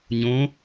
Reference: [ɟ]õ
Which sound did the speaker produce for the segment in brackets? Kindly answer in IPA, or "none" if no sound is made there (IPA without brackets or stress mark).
ɲ